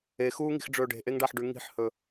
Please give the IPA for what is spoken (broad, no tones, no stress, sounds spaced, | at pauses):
e x uː ŋ i̤ x ɖ͡ʐ ɵː ɖ e̤ ʔ e ŋ ɖ a ħ ɖ ʉ ŋ i̤ ħ h ɵ